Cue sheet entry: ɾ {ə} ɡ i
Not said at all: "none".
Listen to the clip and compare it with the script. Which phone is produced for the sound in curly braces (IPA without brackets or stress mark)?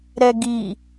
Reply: ɛ